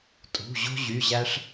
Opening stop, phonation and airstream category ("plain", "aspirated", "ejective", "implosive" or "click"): ejective